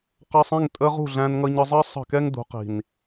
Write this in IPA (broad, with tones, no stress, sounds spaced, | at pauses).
q ɑ˧ sˤ ĩ˦˨ ŋ tʼ ə˧ ʁ ṳ˦˨ ɮ æ̃˧ n ŋ ʌ˧ ɲ ə˧ zˤ ɜ˦ sˤ ə̤˦˨ k ɛ˦ ŋ d̪ ṳ˨˦ q i̤˨ n